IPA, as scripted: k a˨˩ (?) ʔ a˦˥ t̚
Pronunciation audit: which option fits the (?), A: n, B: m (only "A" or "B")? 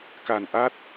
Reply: A